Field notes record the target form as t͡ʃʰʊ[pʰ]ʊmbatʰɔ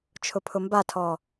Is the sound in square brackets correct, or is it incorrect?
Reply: correct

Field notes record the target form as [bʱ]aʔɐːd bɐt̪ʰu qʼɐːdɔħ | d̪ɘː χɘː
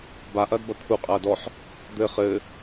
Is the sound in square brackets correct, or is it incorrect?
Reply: incorrect: b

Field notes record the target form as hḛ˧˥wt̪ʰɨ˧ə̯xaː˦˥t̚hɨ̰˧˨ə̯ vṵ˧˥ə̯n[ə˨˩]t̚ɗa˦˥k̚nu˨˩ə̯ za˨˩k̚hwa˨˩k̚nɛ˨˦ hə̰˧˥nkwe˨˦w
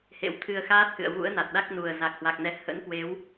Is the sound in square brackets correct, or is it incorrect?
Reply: incorrect: a˨˩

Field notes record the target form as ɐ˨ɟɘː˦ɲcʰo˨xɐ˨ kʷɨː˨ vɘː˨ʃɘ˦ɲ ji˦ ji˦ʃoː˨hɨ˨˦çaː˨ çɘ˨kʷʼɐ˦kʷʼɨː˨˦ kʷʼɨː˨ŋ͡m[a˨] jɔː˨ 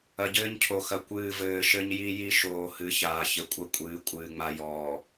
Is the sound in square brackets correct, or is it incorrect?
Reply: correct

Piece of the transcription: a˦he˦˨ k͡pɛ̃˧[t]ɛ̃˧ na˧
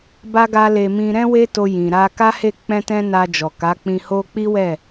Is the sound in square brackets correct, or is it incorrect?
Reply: correct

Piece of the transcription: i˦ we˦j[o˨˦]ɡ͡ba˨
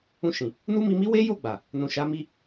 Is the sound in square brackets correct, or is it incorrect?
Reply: incorrect: o˦˨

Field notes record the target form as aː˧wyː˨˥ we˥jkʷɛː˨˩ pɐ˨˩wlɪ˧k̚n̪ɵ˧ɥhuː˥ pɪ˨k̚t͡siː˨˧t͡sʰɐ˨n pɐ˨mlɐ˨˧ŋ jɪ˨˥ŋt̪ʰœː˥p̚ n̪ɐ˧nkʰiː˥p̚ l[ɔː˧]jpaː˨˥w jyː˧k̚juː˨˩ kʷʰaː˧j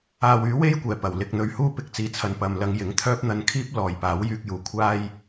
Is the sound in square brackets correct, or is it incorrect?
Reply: incorrect: ɔː˨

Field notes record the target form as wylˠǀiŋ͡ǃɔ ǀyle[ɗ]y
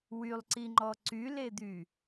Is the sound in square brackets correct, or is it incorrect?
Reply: incorrect: d̪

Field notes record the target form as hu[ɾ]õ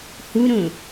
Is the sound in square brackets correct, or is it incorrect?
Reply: correct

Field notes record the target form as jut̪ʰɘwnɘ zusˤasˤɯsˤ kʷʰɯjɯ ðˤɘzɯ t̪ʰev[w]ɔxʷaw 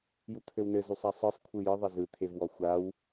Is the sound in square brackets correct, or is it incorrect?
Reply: correct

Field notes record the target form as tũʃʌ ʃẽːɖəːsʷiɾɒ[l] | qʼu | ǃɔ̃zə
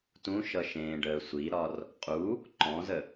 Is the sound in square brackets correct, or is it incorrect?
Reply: incorrect: r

